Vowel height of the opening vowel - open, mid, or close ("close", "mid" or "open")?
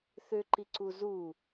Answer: close